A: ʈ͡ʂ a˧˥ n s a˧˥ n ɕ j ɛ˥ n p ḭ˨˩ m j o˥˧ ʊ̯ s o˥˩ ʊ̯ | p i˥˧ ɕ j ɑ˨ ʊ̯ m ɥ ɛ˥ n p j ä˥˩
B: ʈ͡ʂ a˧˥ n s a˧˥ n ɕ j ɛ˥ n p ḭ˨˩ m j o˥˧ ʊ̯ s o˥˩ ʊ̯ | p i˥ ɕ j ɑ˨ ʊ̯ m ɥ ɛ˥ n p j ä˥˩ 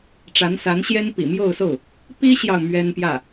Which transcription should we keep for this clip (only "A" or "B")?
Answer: B